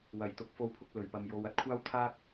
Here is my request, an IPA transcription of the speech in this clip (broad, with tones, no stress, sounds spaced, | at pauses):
w ɐ˨˩ j t̪ ʊ˨ k̚ f o˧ w pʰ ʊ˧ k̚ l ɵ˨˩ ɥ p ɐ˨ m j o˨˧ w ɐ˧ t̚ kʷʰ aː˥ w t̪ʰ aː˥ k̚